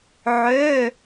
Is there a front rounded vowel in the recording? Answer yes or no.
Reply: yes